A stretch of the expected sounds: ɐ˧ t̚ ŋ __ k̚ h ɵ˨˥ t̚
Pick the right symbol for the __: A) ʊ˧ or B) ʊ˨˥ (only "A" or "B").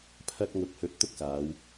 B